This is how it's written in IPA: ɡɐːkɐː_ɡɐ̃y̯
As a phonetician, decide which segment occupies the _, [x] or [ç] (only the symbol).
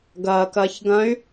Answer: ç